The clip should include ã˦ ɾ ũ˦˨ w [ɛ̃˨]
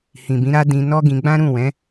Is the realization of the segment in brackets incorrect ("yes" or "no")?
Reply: yes